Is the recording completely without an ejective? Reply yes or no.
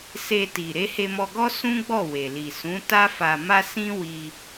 yes